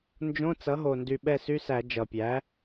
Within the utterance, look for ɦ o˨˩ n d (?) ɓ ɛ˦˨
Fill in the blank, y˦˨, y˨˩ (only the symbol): y˨˩